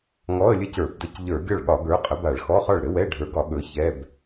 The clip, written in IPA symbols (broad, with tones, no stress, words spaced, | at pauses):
ŋɔ˧˥˧ə̯lʲɘ˥˩cə˞˧˩˧bdə˧˥˧c ʎə˞˧˩˧ɡʲɒ˥˩ɭɠɒ˧˩˧ɡə˞˨˥ qʼə˨˥ba˧˩˧ɭxɔ˧˥˧χɒ˥˩ɭ ɾɘ˨˥wɛ˧˥˧ ɖʱə˞˨˥ɡɒ˧˩˧ ɠɵ˨˥ çɛ˧˥˧b